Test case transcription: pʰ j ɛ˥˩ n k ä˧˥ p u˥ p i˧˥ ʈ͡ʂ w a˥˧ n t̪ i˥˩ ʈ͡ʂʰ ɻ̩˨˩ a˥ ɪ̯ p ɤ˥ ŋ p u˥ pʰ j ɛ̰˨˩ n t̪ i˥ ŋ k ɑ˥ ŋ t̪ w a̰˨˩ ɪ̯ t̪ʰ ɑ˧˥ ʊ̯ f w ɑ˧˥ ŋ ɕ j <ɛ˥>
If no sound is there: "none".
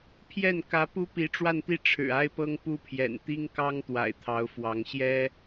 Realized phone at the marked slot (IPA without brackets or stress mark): ɛ˥